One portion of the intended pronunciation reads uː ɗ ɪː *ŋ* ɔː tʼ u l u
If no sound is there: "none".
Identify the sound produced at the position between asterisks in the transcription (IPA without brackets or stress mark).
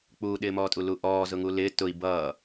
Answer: m